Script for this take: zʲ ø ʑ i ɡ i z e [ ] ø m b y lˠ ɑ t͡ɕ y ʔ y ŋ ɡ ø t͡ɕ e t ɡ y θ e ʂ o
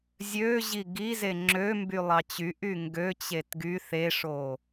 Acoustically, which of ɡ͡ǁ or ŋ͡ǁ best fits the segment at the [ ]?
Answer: ŋ͡ǁ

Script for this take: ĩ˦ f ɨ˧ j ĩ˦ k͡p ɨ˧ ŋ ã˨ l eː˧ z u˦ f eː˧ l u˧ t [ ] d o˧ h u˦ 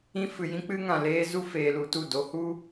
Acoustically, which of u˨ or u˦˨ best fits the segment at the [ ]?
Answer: u˦˨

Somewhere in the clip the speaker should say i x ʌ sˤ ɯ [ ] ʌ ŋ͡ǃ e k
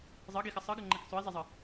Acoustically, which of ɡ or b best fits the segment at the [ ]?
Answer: ɡ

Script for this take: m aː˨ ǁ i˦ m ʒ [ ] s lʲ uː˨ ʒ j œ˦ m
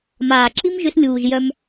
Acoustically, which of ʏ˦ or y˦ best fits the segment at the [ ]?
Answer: ʏ˦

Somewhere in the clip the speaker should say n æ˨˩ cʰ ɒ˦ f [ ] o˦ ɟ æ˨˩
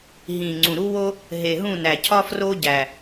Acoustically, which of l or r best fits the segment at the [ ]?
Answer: r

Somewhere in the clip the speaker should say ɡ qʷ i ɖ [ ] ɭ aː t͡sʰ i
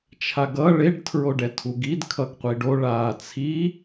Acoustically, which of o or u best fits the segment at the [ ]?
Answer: o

